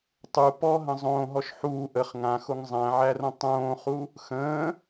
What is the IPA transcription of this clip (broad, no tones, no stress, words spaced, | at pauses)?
tˤu pɔɦə̃ zˤõːɦɔʃ ħuː ʔəχ ŋãxoŋ zˤæ̃ʕærõ tˤõːχu | xə̃ː